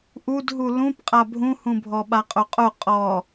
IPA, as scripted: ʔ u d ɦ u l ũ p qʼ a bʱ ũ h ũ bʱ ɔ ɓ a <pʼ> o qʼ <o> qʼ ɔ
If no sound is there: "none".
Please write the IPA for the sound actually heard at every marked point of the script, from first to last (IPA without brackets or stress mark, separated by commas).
qʼ, o